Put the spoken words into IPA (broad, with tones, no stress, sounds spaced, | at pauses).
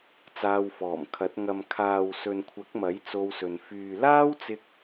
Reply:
t͡s aː˧ w f ɔː˨˩ m kʰ ɐ˨˥ t̚ ŋ ɐ˨ m kʰ aː˨ w s ɵ˨ n kʷʰ ɐ˨˥ k̚ m ɐ˨˥ j t͡s o˧ w s ɵ˨ n f yː˨ l aː˥ w t͡s ɪ˧ k̚